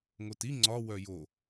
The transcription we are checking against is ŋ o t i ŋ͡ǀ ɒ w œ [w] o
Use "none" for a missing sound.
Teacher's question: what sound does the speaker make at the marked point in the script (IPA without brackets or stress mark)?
j